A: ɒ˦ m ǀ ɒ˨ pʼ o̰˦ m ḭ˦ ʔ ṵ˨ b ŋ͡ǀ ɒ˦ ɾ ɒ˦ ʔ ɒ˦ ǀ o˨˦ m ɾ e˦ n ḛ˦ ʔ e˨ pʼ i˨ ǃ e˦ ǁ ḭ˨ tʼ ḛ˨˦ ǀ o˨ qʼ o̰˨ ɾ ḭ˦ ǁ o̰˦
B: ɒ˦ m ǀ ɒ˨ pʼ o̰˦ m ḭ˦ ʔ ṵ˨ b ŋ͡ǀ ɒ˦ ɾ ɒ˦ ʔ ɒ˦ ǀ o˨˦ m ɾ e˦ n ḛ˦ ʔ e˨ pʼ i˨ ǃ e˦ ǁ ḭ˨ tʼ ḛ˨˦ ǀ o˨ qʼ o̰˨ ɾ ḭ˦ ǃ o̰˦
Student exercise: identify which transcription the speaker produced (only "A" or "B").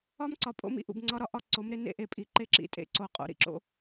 A